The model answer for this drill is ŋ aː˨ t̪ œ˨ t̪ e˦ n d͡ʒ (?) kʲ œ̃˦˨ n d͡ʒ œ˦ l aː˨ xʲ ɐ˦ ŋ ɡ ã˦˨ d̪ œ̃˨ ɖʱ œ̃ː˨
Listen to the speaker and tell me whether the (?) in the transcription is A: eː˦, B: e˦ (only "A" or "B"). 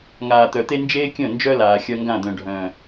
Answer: A